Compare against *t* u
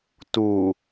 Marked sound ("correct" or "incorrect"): correct